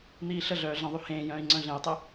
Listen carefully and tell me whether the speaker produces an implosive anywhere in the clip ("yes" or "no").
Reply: no